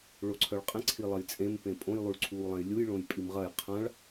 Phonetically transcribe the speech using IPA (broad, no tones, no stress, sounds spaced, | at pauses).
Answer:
ɭ o ǀʰ œ ɭ qʼ ẽ ǀʰ i lˠ ɐ j t͡sʼ ẽ m p ẽ pʼ õ j lˠ u ɭ ǀʰ uː lˠ ɛ̃ j lʲ u j ɭ õ j pʼ i m ʁ ɐ j qʰ ã ɭ